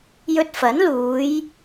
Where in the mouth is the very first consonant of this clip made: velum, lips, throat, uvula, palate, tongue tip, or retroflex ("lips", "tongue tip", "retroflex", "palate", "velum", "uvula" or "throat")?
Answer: palate